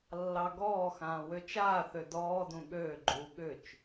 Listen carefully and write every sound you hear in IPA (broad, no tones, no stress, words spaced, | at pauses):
lːɑɡɔːxãː wøt͡ʃaːθø dɔːdũ ɠøːɡ͡ǃuː ɠʏt͡ʃ